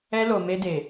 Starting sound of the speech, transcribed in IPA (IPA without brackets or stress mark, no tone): ɛ